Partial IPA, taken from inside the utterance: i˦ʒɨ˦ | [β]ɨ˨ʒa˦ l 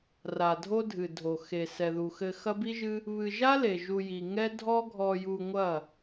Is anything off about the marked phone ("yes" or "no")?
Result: no